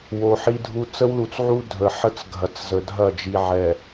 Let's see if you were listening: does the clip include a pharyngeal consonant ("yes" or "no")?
yes